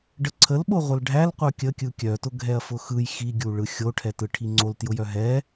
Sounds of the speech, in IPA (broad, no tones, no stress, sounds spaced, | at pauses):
ɖ ə ǀʰ ə l ɓ o ʁʷ ə l ɖʱ æ l qʷ œ kʲ ə kʲ ɯ kʲ œ t ʊ ɡʱ ɛ ɐ̯ f ʊ x ɯ j x i ɡʲ u ɭ ɯ xʲ o ʈʰ ɛ t ɯ ʈʰ i ŋ͡ǀ o l t j ʊ j œ ɦ ɛ